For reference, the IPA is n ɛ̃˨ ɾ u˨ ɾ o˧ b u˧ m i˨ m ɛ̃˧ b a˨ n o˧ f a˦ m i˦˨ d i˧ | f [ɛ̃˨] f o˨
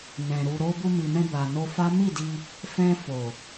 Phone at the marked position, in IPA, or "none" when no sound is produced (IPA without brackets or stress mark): ɛ̃˧